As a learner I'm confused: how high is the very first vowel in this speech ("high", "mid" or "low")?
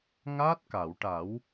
low